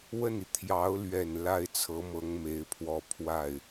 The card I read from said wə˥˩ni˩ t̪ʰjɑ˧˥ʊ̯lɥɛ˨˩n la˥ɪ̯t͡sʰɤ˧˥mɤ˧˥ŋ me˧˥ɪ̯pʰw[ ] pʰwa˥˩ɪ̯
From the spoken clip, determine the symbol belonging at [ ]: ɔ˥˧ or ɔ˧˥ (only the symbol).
ɔ˥˧